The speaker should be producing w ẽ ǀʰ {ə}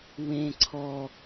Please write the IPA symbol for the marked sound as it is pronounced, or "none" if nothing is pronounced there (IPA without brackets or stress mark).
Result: ɔ